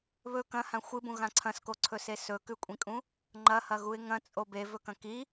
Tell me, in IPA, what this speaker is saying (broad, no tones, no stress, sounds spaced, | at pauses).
β ɵ k ɐ̃ h ã xʷ ɨ b ũ ɣ ã ǀʰ ɐ̃ s k o ǀʰ ɵ s e s ɵ k ʉ kʷʼ ĩ kʼ ũ | ŋ͡ǃ ɐ h ɐ ɣ u ɪ̯ ŋ ɐ̃ t͡sʼ o b e v ɵ k ɐ̃ k i